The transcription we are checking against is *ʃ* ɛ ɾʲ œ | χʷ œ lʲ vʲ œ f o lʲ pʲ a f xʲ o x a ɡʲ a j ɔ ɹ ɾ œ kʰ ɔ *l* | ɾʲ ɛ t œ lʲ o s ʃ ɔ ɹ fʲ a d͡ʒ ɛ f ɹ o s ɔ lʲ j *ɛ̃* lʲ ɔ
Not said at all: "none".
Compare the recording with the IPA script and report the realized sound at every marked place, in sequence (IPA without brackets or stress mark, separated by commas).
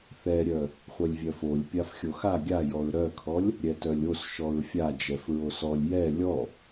θ, lʲ, ɛ